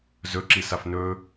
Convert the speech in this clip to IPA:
z ɵ ǁ i s a f n ɵ

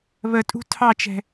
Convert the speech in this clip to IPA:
β ə tʼ ṳ tʰ ɑ t͡ʃ ɛ̤

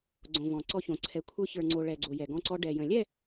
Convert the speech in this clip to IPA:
ɡ͡ǀ õ˨ v ɔ̃˨ ǀ ɔ˦ ç õ˨ ǀʰ ɛ˨˦ kʷʰ ə˞˦ ç ə˞˨ ŋ͡ǀ o˨ ɭ ɛ˨ ɡ͡ǀ o˨ j ɛ˨ ɡ ɔ̃˦ ǀ ɔ˦ ɖ ɛ˨ j ə̃˨ lʲ ɛ˦˨

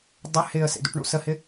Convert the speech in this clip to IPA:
dˤ ɪ h ɪː ə̯ s ḛ d ṵ ʈ ɳ ṵ s ə h ɪ

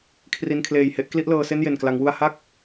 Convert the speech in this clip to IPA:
kʰ r i˧ n kʰ l eː˨˩ j h e˥˩ ʔ k l i˥˩ ʔ l ɤː˧ s e˥˩ n j e˨˩ n k l a˩˦ ŋ w u˧ a̯ h a˥˩ k̚

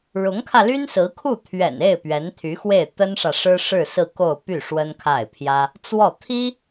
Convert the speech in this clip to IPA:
ɻ ʊ˧˥ ŋ kʰ ä˧ l y˥ n s ɹ̩˧˥ kʰ u˥˩ t̪ʰ ɥ ɛ̰˨˩ n e˥˩ ɪ̯ p ɥ ɛ˧˥ n t̪ʰ y˧˥ x w e˥˩ ɪ̯ t̪ ə˥ n ʂ ä˨ ʂ ɻ̩˥ ʂ ɻ̩˥˧ s ɹ̩˥˧ k o˥˧ ʊ̯ p y˥˩ ʂ w ə˥ n kʰ a˥˩ ɪ̯ pʰ j ä˥ | t͡s w ɔ˥˩ t̪ʰ i˥

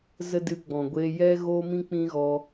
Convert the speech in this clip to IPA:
z ə˦ d ɨ˧ ɡ͡b ɔ̃˨ ɡʷ eː˧ j ɛ˦ ɣ oː˦ m ĩ˦ k͡p ĩ˦ ɣ ɔ˧

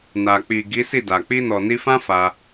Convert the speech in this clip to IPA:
n a˨ k͡p i˨ ɡ i˨˦ s i˦˨ d a˨ k͡p i˧ n ɔ˨ n i˧ f ã˦ f a˧

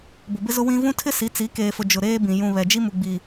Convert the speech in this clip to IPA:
b ʊ˨ b ɪ˦ z ʊ˦ w ĩ˦ v ũ˦ tʰ ɪ˦ s i˨˦ t͡s i˨˦ k eː˨ f ʊ˨ d͡ʒ ʊ˨ ɾ eː˦ b ĩ˨ j ũ˨ β ɛ˨ d͡ʒ i˦ m u˨ ɡ͡b i˨

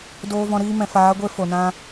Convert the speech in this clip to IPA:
d oː˧ v ɔ̃˧ ɾ iː˦ m ɛ̃˨ f aː˨˦ ɡʷ e˧ f o˨ n ã˦

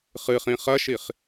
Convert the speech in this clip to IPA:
χ ɨ χ ĩ χ ɐ ʃ i χ

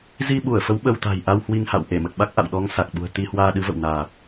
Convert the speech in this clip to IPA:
z i˧ ɓ u˧˩ ə̯ f ə˨˦ w ɓ ə˧ w t̪ a̤˨˩ j ʔ a˧ w h w i˧ ŋ h a̰˧˨ w ʔ e˧˩ m ə˨˩ t̚ ɓ a˦˥ k̚ ʔ a̰˧˨ w ɗ ɔ˨˦ ŋ s a˨˩ k̚ ɓ ṳ˨˩ ə̯ t̪ i˧ h w aː˧ ɗ ɨ˨˦ v ə̰˧˨ w n aː˨˩ t̚

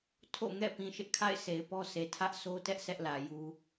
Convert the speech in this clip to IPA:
tʰ o̰˦˨ ŋ ɛ̰˦˨ p ĩ˨ ʃ ɪ˦ ʔ kʰ a̰˦˨ ɪ̯ sʰ e˨ ɪ̯ p ɔ˦ s e˨ tʰ ä˦ ʔ s o˦ t ɛ˦ ʔ sʰ ɛ˦ ʔ l ä˨ j u˦

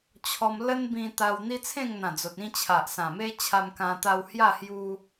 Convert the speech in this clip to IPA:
t͡ɕʰ ɔ˧ m l ə˦ n b ĩ˧ t̪ a˧ w n̪ i˦ t͡sʰ ẽ˥˧ ŋ n̪ ã˨˩ d͡z o˨ t̚ ĩ˥˧ t͡ɕʰ a˨ ʔ s ã˨˩ m e˦ t͡ɕʰ a˧ m k ã˧ t̪ a˧ w h j a˥˧ h j u˦

